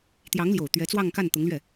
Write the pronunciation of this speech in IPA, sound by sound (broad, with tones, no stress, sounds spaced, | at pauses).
t̪ j ɑ˧˥ ŋ l j o˨˩ ʊ̯ t̪ ɥ ɛ˧˥ t͡s w ɑ˥˧ ŋ k a˥˩ n t̪ ʊ˧˥ ŋ l ɥ ɛ˥˩